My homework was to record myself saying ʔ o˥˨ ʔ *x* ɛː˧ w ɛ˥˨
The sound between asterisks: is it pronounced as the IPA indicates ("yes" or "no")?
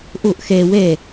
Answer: yes